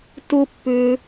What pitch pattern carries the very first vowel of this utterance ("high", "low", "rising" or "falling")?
low